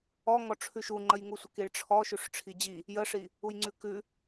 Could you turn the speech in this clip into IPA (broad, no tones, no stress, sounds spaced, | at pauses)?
ɔ ŋ ɔ ʈ͡ʂʰ ʉ ʃ u ŋ͡ǃ ə j ŋ u sʷ ə k i ɭ ʈ͡ʂʰ ɔ ʃ ʉ ʂ ʈ͡ʂʰ i d͡ʑ i | j ə ʂ i | u j ŋ͡ǀ ʉ k ʉ